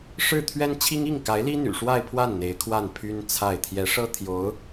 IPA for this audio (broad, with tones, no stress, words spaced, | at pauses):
ʂɻ̩˥˩ t̪ʰɥɛ˥nt͡ɕʰi˥ŋ i˥˩ŋka˧˥ɪ̯li˥ n̪y̰˨˩ʂwa˥˧ɪ̯pʰwa˥˩n n̪e˧˥ɪ̯ kʰwa˥˩npʰy˥nt͡sʰa˥˩ɪ̯ t̪ʰjɛ˧˥ʂɤ˥ t̪ʰjo˧˥ʊ̯